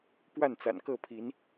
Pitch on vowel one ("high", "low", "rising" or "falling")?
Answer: falling